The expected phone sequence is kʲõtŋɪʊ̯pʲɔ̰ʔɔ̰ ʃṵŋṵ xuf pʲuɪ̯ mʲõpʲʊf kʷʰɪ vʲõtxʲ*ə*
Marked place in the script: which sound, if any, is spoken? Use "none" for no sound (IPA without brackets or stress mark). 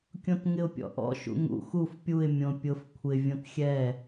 ɛ